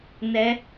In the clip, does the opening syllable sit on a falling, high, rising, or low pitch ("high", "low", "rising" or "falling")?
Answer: rising